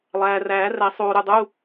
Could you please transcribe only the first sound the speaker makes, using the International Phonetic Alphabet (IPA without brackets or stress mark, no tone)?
lˠ